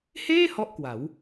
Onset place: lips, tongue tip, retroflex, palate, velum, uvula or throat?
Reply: throat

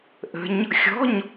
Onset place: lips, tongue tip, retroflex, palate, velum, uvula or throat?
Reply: throat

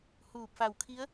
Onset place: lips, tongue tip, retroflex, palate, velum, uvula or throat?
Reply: throat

